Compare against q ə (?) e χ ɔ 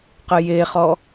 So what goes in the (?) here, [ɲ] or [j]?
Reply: j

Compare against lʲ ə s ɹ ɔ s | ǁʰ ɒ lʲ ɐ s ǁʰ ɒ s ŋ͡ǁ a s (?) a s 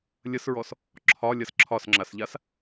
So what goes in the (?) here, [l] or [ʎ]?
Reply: ʎ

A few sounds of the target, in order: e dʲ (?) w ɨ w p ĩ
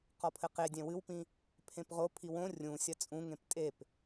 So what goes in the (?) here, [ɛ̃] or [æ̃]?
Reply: ɛ̃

